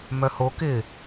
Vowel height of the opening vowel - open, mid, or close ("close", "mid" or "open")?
mid